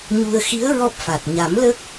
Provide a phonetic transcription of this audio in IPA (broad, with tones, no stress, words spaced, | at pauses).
ɲu˧ə̯ xi˧˥ə̯ ɹɔ˦˥p̚fa˨˩t̚ ɲa˨˩˦m lə˦˥k̚